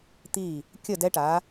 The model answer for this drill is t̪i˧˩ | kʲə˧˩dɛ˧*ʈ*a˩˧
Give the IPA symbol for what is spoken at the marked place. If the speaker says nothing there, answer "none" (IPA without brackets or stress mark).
ʈ